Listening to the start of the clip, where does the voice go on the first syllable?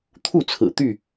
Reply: falling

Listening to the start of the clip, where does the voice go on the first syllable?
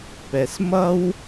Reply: low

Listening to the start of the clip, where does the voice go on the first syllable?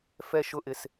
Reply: low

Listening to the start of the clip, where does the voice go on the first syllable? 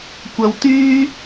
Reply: low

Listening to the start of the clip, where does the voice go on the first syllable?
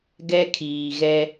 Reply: high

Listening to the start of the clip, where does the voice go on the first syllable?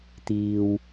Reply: low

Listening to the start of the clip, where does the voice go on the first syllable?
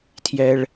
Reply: high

